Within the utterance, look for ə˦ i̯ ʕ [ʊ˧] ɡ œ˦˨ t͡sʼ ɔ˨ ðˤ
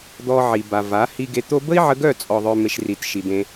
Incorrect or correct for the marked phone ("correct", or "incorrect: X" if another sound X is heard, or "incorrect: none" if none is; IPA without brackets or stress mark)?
incorrect: ə˧